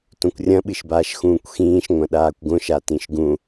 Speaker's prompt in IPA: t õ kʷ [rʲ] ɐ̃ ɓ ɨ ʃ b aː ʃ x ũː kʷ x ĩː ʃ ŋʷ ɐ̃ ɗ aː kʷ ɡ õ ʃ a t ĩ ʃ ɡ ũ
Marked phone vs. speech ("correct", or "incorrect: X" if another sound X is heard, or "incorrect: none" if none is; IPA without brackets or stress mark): correct